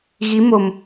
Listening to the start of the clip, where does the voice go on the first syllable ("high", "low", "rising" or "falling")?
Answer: rising